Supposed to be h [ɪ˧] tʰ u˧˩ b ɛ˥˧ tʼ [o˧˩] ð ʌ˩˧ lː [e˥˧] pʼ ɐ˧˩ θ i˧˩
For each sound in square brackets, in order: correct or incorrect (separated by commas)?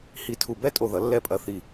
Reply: incorrect, correct, incorrect